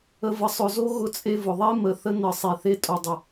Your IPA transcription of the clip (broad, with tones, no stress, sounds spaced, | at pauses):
ə˨ v ə˨ sˤ ʊ˨ z o˦ ɣ ʊ˦ t͡sʼ e˦ v ʊ˨ ðˤ e˦ m ə˨ θ ə˦ n ə˨ sˤ e˨ θ e˦ tʼ o˨ dˤ ə˨